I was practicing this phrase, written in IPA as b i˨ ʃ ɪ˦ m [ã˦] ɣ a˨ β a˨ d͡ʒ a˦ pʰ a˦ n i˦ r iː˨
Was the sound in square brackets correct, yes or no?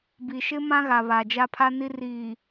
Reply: yes